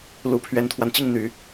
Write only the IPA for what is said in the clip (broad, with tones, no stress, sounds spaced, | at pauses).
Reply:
l u˨˩ pʰ ɥ ɛ˧˥ n t̪ʰ w a˧ n t͡ɕ i˥˩ ŋ n̪ y˨˩˦